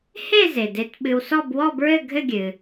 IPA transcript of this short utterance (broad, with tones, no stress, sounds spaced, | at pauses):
h e˥˧ z e˩ d e˧ t ɓ ɨ˧ w s ɔ˥˧ b w ɔ˥˧ b ɹ ɘ˥˧ ɡʱ ɘ˥˧ ɡʲ ɨ˩